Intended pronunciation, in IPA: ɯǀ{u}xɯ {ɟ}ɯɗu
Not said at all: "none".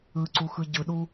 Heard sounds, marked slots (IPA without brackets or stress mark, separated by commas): u, ɟ